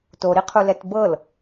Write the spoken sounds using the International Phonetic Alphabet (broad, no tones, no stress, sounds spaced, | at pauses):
t o ɾ i qʰ u l ɛ t b ɤ l